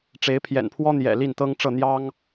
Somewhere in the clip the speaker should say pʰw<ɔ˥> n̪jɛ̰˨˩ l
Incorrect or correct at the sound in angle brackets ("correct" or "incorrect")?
correct